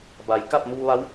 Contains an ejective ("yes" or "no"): no